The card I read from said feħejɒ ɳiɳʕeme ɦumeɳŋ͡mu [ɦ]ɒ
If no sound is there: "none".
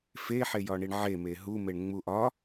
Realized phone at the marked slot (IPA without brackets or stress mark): ʔ